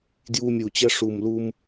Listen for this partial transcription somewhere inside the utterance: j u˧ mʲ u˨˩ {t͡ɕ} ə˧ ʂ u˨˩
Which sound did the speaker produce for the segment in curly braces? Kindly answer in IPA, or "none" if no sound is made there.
t͡ɕ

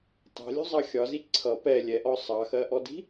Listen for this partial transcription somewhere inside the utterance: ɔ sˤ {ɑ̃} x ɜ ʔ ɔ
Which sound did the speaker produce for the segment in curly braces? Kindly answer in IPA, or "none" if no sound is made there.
ɑ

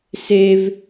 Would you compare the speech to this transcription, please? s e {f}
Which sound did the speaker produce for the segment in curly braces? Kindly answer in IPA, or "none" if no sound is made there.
v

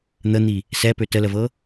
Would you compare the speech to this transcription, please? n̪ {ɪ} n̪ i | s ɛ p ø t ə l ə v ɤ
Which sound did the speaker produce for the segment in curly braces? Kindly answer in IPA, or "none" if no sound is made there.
ə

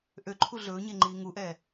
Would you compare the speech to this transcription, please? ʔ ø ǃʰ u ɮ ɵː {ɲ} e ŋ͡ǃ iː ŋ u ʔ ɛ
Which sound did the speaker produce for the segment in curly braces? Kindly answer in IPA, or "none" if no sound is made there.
ɲ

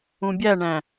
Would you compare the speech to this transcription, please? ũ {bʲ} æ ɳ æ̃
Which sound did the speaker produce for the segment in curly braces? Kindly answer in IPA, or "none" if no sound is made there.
bʲ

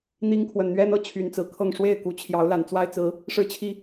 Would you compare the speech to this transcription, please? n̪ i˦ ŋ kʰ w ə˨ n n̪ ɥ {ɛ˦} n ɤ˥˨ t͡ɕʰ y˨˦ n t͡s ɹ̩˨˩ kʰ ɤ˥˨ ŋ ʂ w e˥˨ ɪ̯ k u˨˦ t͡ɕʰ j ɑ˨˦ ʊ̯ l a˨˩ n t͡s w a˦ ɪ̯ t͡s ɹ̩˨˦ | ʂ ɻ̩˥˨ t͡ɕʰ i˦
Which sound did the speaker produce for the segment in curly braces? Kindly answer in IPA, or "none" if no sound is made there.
ɛ˦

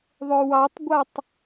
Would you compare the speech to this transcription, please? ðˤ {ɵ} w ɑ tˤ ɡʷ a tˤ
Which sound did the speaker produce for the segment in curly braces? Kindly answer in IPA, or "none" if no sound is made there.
ɵ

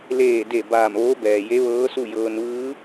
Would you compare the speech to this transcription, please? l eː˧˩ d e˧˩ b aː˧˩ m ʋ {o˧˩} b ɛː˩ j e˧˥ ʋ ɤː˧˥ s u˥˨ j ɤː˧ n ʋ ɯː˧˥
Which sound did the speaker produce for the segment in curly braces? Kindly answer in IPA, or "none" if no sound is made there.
o˧˥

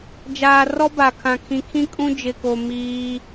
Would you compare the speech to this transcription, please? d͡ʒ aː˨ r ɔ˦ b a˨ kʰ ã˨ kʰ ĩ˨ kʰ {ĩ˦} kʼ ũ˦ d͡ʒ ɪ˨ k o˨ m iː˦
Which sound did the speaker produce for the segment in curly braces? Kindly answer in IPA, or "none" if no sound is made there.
ĩ˦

